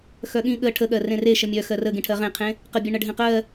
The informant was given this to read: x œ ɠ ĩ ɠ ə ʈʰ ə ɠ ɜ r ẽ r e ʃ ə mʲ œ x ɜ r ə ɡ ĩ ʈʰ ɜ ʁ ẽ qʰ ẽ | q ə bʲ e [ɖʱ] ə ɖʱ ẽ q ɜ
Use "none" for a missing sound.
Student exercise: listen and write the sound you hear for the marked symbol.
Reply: ɳ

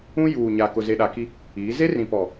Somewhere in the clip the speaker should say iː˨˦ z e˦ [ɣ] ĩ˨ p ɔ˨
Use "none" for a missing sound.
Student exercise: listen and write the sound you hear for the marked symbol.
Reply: r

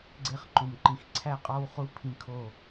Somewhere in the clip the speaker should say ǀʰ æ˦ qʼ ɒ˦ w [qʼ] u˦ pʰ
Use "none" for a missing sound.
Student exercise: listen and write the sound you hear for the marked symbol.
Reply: χ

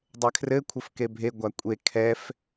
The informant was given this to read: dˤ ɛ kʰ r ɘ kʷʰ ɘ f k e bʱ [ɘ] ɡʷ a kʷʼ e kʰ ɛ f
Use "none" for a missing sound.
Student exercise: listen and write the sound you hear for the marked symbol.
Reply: e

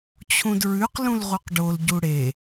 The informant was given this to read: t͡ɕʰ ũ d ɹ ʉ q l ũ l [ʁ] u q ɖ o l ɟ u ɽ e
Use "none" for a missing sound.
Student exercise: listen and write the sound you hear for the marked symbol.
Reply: ʁ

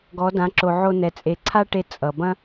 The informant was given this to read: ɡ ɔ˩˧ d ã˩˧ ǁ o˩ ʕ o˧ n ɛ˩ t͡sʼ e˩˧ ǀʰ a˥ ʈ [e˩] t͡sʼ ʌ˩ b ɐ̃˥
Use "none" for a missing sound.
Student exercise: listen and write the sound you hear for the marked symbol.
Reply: e˧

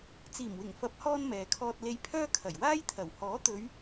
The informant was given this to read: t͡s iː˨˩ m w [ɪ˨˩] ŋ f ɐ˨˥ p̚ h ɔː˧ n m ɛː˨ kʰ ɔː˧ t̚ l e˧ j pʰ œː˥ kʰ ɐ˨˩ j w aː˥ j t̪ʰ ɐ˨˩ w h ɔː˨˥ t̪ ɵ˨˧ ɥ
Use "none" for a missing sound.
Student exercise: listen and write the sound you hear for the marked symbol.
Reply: ɪ˨˩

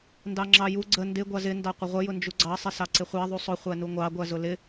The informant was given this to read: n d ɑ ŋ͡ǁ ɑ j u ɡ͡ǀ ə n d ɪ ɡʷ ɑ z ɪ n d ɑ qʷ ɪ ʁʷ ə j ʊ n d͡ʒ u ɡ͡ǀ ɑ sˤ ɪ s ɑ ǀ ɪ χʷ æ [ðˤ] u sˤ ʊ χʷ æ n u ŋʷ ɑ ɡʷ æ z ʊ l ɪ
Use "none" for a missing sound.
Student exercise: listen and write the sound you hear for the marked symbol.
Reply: ðˤ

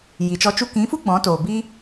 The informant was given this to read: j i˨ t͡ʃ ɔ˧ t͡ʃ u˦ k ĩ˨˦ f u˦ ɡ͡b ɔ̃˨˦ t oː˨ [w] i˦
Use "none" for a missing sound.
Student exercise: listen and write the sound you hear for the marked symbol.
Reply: b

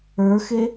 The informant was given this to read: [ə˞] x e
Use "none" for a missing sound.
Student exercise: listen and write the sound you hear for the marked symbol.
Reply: ə˞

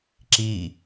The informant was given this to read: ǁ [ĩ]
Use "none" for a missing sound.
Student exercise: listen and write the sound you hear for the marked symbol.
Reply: i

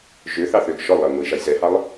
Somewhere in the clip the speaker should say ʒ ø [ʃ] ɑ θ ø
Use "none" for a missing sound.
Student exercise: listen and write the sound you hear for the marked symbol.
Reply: θ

